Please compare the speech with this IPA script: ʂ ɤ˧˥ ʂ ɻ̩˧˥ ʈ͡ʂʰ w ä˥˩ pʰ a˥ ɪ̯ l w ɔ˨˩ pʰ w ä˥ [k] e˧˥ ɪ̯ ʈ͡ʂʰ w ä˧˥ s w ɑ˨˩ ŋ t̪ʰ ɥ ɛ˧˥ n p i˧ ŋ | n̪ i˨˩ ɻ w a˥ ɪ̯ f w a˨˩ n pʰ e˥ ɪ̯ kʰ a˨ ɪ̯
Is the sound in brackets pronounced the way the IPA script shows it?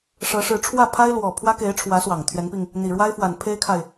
yes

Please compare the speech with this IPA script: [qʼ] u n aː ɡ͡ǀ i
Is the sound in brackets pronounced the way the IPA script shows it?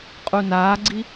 yes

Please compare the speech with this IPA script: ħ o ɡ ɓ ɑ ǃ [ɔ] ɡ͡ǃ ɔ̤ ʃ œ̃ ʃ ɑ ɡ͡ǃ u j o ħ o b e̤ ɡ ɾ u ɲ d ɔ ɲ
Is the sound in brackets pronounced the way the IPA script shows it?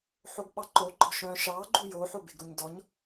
no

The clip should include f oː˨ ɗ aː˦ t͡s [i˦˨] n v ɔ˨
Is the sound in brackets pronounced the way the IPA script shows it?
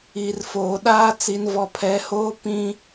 no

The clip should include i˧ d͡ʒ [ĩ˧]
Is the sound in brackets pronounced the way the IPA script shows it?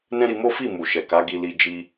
no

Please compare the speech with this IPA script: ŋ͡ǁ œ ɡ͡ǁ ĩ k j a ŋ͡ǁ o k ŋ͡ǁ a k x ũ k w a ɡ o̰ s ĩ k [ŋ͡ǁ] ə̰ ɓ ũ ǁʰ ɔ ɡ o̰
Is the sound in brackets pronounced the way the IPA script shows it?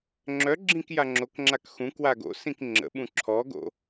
yes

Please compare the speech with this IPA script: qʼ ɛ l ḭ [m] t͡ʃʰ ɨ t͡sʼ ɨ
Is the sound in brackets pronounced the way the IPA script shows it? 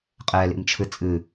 yes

